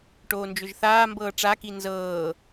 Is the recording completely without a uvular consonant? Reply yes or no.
yes